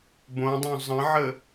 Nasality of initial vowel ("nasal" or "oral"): nasal